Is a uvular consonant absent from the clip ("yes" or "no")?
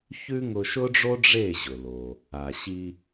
yes